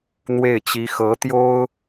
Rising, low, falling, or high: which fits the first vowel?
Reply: falling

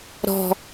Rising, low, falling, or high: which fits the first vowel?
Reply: high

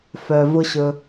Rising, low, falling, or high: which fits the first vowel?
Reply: low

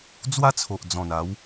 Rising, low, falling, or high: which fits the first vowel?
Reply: high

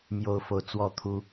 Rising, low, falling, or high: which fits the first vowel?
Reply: high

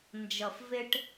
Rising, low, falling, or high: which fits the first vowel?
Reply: low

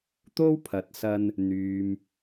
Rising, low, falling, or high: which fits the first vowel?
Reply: high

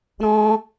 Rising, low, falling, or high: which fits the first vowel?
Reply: high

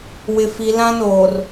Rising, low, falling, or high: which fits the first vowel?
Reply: low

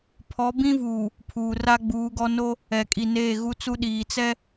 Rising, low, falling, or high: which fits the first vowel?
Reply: rising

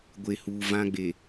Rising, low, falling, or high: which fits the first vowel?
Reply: low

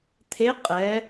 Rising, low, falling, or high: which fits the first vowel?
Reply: rising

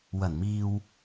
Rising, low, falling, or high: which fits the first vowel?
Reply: low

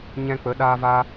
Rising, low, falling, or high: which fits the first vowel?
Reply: high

